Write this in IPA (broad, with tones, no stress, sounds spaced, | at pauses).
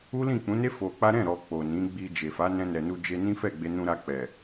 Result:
u˦ l ĩ˦˨ k͡p ũ˨˦ n e˦ f o˧ k͡p a˦ ɾ ɛ̃˦˨ ɾ ɔ˨ k͡p o˨ n ĩ˨˦ ɡ͡b i˧ d͡ʒ e˨ f a˨˦ n ɛ̃˧ n ɛ˨ n u˧ d͡ʒ e˧ n ĩ˦ f ɛ˦˨ ɡ͡b e˧ n ũ˧ ɾ a˧ k͡p ɛ˨